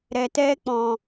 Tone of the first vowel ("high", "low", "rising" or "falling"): low